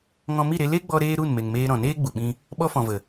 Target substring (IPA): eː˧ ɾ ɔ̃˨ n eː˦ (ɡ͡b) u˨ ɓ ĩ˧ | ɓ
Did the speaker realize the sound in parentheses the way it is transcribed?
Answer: yes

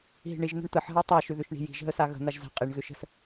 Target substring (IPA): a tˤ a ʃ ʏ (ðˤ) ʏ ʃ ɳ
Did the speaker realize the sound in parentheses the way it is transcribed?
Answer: no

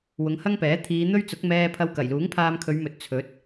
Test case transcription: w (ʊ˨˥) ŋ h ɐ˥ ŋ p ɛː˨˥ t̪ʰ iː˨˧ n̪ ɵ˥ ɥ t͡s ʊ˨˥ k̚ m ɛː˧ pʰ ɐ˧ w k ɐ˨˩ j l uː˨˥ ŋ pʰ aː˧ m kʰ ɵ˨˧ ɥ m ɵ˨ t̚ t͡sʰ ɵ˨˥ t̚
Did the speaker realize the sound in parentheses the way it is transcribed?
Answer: no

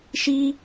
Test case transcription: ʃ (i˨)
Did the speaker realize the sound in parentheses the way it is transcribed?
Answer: no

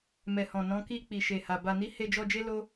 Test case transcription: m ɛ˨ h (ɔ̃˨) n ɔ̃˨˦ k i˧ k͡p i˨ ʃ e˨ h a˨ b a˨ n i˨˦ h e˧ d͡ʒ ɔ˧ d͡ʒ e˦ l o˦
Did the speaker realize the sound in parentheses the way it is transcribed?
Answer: yes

